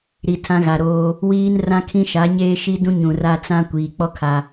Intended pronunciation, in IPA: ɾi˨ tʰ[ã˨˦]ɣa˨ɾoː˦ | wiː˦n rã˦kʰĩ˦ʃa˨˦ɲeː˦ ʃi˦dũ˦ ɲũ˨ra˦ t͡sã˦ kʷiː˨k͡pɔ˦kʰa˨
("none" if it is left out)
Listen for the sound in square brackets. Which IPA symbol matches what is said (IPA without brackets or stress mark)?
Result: ã˦